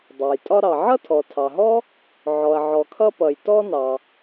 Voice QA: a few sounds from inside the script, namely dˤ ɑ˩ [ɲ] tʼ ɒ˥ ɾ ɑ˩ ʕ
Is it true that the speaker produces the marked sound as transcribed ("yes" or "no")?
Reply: no